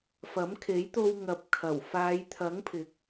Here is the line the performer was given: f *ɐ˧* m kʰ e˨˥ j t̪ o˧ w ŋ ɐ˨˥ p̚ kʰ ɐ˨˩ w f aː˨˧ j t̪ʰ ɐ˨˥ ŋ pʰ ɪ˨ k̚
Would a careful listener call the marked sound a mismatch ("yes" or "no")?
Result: yes